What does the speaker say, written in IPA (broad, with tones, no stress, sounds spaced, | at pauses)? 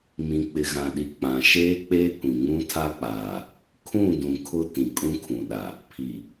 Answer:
m ĩ˨ k͡p ɪ˨ ɣ ã˨ ɗ i˨ k͡p ã˨ ʃ eː˦ k͡p eː˦ kʷ ĩ˨ ŋ ũ˦ tʰ a˦ k͡p aː˨ | kʰ ũ˦˨ d ũ˨ kʰ ʊ˦ t ĩ˨ kʼ ũ˦ kʰ ũ˨ ɗ a˨ | pʰ i˨